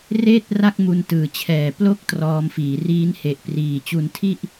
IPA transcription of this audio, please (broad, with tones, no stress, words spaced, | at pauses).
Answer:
reː˥˩t̚ ra˥˩k̚ mu˧ntɯː˩˦t͡ɕʰɛː˨˩ plo˥˩k̚ trɔː˧mfiː˩˦ riː˦˥nhe˨˩ʔpriː˨˩ t͡ɕu˧ntʰi˥˩ʔ